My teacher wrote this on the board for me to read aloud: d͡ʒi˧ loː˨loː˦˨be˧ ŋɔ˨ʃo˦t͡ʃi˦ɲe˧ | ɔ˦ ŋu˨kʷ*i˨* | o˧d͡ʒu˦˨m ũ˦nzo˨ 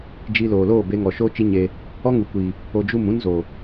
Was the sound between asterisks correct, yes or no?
yes